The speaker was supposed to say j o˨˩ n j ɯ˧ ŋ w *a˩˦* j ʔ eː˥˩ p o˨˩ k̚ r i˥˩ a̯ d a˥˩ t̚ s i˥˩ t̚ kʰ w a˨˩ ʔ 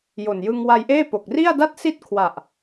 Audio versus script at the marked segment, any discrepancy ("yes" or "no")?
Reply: yes